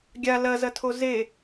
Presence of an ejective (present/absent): absent